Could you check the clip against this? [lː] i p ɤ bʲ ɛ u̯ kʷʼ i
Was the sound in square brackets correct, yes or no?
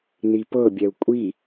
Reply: no